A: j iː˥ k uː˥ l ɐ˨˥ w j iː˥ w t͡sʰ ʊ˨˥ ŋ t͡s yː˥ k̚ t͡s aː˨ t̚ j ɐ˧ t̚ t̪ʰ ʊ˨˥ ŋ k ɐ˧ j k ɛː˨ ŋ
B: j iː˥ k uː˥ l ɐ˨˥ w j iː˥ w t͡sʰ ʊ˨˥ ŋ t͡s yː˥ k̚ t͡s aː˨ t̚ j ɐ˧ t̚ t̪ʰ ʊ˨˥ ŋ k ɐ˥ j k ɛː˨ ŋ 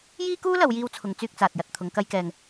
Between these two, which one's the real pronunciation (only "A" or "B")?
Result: B